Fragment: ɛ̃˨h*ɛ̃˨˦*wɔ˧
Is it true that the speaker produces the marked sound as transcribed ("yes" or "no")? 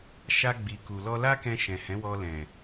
yes